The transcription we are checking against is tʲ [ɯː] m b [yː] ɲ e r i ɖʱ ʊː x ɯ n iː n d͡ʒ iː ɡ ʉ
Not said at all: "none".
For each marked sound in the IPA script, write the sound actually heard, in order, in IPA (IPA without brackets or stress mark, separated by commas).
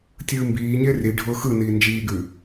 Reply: ɯː, iː